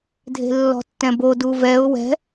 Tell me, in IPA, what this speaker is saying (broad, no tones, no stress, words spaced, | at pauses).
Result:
dʱe̤lːɔ̤tːɛ̃bo duvɛʊ̯ wɛ̤